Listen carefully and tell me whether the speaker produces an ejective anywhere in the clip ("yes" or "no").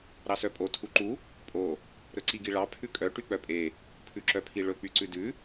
yes